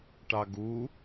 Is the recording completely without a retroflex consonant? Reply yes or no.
no